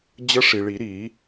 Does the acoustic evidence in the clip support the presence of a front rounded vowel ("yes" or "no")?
no